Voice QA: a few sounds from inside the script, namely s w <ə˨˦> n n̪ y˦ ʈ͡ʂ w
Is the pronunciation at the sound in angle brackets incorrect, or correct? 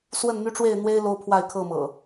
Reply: incorrect: ə˥˨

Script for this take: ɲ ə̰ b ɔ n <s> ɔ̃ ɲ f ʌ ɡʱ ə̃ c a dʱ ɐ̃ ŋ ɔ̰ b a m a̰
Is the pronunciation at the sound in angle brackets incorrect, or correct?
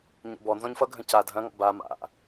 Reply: incorrect: z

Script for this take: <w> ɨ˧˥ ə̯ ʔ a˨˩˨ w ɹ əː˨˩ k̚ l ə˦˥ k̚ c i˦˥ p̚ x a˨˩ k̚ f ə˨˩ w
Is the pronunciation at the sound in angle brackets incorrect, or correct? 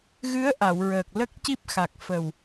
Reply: incorrect: ɣ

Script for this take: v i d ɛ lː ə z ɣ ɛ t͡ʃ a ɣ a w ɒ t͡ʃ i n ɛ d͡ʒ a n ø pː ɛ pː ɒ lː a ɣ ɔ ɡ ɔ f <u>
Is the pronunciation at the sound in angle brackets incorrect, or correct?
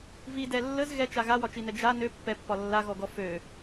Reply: incorrect: ø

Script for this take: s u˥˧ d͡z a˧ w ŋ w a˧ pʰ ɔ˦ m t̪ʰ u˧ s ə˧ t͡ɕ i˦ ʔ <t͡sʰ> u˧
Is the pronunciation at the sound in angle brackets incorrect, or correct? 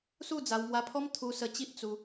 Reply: incorrect: t͡s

